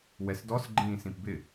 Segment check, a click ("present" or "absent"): present